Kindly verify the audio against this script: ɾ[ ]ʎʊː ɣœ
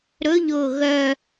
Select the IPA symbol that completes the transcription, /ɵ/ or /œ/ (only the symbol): ɵ